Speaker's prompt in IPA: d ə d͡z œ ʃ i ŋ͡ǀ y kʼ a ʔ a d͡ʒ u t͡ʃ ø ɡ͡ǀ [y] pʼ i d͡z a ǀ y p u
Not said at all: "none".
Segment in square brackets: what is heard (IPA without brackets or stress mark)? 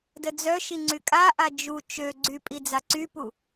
y